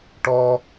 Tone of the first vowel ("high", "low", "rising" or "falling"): high